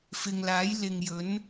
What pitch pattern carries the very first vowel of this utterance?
low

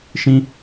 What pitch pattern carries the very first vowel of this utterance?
high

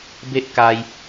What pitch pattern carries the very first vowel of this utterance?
high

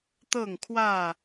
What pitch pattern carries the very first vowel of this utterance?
falling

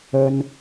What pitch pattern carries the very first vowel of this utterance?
high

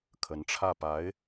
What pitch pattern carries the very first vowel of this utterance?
rising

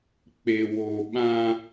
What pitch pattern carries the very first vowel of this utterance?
low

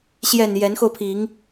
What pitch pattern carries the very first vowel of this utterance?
low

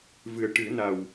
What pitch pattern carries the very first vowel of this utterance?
low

